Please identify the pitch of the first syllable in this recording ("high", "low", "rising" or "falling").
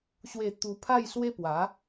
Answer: falling